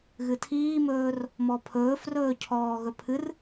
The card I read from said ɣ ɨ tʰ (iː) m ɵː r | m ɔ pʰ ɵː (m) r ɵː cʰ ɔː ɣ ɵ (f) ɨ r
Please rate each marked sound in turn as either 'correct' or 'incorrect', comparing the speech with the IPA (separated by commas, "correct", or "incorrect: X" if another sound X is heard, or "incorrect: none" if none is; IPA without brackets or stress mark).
correct, incorrect: f, incorrect: pʰ